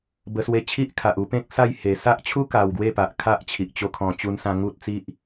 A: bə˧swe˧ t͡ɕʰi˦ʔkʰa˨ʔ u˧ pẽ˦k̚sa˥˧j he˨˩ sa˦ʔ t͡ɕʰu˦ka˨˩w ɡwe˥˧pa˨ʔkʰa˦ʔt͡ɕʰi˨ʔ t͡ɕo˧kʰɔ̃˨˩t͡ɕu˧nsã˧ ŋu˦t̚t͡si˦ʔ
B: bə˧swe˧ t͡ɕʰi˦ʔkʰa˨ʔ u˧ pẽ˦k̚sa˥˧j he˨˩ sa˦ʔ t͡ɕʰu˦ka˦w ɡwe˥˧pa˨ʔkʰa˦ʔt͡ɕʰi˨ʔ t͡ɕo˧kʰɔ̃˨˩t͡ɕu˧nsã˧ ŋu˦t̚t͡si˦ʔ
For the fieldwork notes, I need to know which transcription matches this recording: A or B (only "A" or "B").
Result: A